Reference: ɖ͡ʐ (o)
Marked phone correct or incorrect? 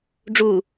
incorrect